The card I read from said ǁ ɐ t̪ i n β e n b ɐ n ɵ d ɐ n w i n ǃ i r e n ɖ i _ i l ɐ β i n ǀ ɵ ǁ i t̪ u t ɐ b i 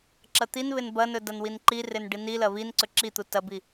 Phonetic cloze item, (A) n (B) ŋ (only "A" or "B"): A